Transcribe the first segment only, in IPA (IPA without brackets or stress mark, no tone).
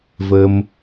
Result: v